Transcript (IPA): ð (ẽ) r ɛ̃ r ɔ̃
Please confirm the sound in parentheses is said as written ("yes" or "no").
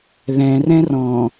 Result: no